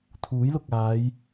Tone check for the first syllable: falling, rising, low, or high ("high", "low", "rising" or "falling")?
rising